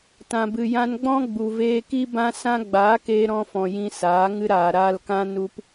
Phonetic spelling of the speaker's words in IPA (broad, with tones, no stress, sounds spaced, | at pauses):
t ã˨ b ɨ˨ j ã˧ n ɡ͡b ɔ̃˦ ɡ͡b u˨ v eː˧ k i˦ b ã˦ s ã˦ ɡ͡b aː˨˦ k eː˧ ɾ ɔ̃˧ f ɔ̃˨ j ĩ˧ s aː˨˦ ŋ ɨ˧ ɾ aː˨ ɾ aː˧ l k ã˦ n u˦ p